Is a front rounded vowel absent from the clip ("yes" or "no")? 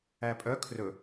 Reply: no